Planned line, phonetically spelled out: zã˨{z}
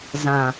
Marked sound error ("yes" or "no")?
yes